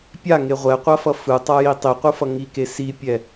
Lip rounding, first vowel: unrounded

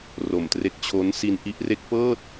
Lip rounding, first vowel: rounded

